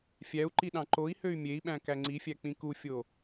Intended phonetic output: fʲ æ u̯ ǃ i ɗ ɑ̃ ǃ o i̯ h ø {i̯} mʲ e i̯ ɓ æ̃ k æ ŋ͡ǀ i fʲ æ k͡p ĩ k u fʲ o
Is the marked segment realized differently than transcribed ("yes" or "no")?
yes